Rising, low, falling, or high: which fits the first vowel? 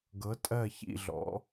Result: rising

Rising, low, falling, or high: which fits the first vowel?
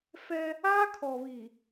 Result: high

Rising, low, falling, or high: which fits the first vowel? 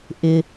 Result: high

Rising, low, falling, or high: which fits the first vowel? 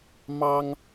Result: high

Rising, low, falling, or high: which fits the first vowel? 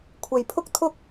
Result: low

